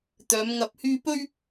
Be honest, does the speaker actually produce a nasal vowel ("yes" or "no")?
no